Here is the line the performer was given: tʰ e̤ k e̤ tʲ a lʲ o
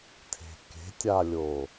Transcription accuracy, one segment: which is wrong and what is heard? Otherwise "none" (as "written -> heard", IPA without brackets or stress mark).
none